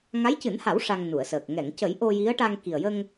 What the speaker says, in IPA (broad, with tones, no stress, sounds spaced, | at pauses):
ŋ a˧˥ j c ɨ˨˩˦ n h a˨˩˦ w ʂ a˧ ŋ n u˨˩˨ ə̯ s əː˨˩ k̚ ŋ ɛ˨˩˨ ŋ c ə˨˩˦ j ʔ o˧ j i˧˥ ə̯ ʈ a˧ ŋ k i˨˩ ə̯ j ə˧ ŋ